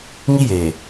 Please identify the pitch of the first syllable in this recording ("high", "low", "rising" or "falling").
high